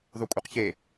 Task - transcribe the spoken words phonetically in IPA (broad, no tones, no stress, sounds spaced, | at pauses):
ðˤ u kʷʼ e q ç e